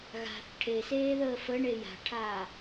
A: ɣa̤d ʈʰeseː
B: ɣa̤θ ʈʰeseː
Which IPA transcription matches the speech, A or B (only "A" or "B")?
B